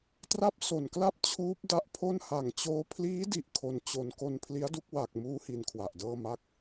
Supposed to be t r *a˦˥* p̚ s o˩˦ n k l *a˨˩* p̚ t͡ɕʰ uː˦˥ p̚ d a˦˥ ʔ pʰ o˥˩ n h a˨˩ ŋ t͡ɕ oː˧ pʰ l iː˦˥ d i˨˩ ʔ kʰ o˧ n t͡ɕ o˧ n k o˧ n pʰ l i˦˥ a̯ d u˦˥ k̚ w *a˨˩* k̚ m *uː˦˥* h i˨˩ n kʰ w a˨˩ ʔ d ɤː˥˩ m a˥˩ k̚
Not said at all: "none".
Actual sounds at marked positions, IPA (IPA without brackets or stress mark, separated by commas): a˥˩, a˥˩, a˨˩, uː˦˥